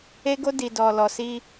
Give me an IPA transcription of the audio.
e˧ɡo˧ di˨dɔ˨lɔ˨si˧

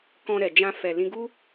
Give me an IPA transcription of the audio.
kɔ̃˧ɾɛ˨d͡ʒã˧ fɛ˨lĩ˧ɡu˦

